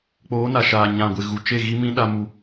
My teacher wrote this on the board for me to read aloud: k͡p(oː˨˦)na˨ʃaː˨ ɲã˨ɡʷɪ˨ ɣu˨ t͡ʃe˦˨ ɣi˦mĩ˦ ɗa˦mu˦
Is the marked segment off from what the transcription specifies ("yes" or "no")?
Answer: no